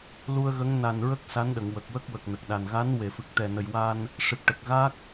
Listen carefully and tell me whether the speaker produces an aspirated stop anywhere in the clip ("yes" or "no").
no